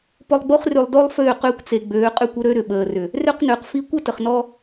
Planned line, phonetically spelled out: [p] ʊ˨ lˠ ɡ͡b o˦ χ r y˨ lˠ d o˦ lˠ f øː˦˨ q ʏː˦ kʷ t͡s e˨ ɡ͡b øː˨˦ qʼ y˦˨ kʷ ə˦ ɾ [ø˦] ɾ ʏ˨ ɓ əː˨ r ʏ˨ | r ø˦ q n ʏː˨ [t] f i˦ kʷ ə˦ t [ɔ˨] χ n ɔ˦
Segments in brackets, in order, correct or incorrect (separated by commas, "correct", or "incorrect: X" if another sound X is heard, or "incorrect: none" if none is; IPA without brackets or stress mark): correct, correct, incorrect: q, incorrect: ə˨